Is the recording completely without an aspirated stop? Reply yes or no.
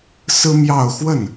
yes